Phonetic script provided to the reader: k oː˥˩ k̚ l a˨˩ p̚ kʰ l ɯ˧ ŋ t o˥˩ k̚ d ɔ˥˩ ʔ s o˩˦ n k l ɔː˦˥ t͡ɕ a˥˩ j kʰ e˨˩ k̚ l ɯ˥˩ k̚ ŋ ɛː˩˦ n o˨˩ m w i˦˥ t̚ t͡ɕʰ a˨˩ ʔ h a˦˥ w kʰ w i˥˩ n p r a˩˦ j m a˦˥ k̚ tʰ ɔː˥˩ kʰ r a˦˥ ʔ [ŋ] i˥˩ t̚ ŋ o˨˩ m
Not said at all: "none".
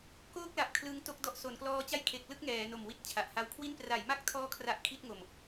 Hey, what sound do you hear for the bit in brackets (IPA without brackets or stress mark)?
kʰ